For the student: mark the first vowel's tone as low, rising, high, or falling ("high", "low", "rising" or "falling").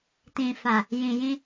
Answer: low